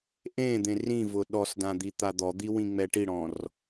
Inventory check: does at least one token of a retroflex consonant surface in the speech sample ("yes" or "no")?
yes